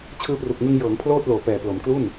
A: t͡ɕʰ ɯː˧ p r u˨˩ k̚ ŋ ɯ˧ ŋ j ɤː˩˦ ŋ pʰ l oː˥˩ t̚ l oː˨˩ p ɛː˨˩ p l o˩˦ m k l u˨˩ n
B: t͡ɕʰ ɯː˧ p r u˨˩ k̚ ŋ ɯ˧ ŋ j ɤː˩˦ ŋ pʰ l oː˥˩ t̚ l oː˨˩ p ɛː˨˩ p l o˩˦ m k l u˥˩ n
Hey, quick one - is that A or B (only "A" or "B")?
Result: B